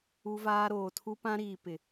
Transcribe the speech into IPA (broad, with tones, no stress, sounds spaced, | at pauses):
u˦ v aː˦ ɾ oː˨ tʰ u˦ p ã˦ ɾ iː˨ p ɪ˨